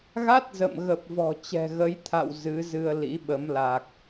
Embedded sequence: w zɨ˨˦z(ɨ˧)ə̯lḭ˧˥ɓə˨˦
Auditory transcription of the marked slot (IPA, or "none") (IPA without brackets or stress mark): ɨ˧